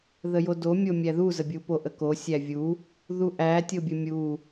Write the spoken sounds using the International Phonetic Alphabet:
ð ə j o d o mʲ o mʲ æ ð u z ə bʲ u p o ʔ ə k o sʲ æ vʲ u | ð u ʔ æ tʲ o bʲ ə mʲ u

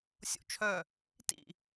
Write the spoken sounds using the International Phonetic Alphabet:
sʲ o̰ t͡ʃʰ œ | t ḭ

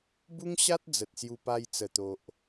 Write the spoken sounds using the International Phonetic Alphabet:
b u˦ ŋ ɕ a˦ t̚ d͡z ə˨ t̚ s j u˧ p a˧ j t͡s ə˨˩ t̪ o˨ ʔ

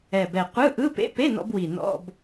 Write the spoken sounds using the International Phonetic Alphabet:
ɛ˨˩ b ɛ˨˩ qʷ ɯ˧˥˧ ʔ ɯ˧˥˧ p ḛ˧˥˧ p e˧˥˧ n ɔ̰˧ b w i˨˩ n ɔ̰˧˥˧ b

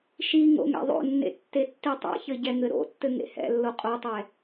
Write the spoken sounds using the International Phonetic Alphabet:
ʃ i ŋ o̰ ŋ ɛ̰ ðˤ o̰ nː ḛ tː e tː i tˤ ɛ̰ ç ɘ ɟ ɛ ŋ ɘ ɾ o̰ tː ɘ ŋ ḛ h ɛ̰ lː o qʼ o tˤ ɛ

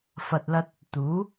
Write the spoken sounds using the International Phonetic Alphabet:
f ɐ˨ t̚ l ɐ˧ t̚ | t̪ uː˨˥

